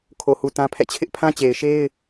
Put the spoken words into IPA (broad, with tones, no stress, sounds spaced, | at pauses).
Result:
kʰ o˨ h u˨ t ã˦ pʰ ɛ̰˦˨ t͡ɕʰ ɪ˦ ʔ pʰ ã˦ t͡ɕ e˨ ɪ̯ ʃ e˦ ɪ̯